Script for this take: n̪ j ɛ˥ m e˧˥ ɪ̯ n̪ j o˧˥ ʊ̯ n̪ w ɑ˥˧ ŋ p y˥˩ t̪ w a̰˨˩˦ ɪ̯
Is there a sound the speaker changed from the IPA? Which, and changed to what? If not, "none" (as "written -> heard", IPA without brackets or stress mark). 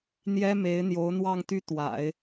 p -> t̪